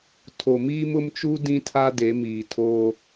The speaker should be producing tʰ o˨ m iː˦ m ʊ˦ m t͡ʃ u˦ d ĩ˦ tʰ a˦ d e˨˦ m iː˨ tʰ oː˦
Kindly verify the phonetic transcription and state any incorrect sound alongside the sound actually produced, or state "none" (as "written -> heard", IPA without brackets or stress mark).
none